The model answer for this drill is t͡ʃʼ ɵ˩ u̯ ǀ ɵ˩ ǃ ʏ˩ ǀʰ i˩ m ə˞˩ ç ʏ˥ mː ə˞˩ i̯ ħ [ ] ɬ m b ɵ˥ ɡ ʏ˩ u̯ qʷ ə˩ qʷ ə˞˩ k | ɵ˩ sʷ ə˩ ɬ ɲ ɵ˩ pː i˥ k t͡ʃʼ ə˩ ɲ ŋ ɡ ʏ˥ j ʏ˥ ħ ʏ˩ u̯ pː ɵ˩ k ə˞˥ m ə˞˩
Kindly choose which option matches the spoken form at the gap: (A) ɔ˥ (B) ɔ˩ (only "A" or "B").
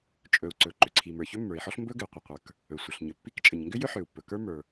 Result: A